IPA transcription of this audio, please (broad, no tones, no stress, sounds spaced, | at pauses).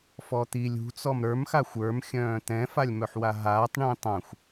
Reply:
f ɔ t̪ i lʲ ṳ t͡s ɔ m ɾ ə˞ m x a xʷ ə˞ m xʲ œ̃ː t̪ ɛ̃ f a lʲ m œ ħ w a ɦ aː tˤ ɳ ĩː tˤ ã xʷ